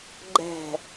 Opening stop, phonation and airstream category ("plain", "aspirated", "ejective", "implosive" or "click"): click